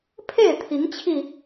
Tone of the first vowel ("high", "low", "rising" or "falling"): falling